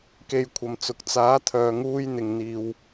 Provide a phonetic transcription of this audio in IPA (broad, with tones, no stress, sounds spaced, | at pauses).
k e˨ j kʷʰ ɐ˨ m t͡s ʊ˨ k̚ t͡s aː˨˥ t̪ʰ œː˨ ŋ uː˧ j n̪ ɪ˨ ŋ n̪ iː˨ w